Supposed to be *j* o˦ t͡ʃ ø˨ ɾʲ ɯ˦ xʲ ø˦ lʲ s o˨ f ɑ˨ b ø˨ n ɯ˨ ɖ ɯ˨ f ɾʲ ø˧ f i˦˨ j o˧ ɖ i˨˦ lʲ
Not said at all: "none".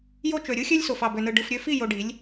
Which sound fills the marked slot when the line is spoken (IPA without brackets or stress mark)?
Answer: j